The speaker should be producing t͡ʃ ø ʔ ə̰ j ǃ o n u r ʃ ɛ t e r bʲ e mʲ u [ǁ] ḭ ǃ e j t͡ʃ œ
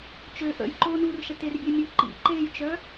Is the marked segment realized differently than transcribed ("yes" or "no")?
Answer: yes